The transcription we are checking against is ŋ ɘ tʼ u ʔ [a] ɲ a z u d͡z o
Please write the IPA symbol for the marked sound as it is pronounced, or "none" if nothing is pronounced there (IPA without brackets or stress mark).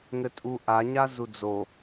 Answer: a